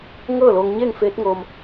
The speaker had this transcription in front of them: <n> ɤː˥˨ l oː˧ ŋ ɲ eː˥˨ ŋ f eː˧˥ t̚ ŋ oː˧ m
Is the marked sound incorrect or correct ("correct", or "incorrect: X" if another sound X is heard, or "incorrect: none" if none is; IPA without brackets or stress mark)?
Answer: incorrect: ŋ